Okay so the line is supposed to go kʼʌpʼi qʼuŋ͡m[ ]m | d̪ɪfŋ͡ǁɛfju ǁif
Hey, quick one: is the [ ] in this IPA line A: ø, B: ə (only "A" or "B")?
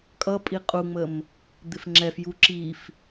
B